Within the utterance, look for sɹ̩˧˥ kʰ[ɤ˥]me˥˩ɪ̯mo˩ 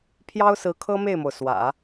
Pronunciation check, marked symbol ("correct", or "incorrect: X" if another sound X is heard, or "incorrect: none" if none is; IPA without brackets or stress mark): correct